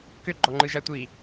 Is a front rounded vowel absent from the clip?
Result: no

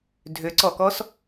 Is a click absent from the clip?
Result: no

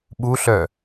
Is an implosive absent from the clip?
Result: no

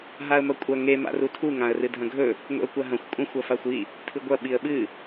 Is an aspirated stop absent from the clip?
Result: no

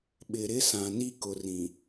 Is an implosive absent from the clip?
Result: no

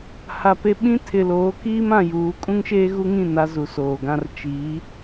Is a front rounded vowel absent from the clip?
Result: yes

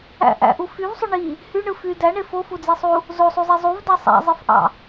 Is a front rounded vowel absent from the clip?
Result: no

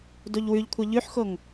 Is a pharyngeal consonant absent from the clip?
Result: no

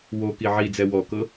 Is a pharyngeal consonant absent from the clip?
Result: no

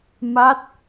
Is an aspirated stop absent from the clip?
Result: yes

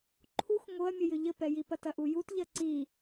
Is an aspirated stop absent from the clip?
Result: no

